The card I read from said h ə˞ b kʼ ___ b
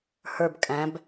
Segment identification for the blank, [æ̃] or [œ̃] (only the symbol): æ̃